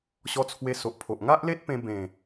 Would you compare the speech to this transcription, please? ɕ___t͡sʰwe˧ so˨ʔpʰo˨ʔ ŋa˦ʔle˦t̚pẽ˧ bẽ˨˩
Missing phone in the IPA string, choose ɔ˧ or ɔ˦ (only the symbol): ɔ˧